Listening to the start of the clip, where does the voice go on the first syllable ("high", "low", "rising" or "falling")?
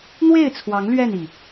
falling